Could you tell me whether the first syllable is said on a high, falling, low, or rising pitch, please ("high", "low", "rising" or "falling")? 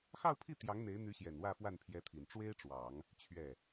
falling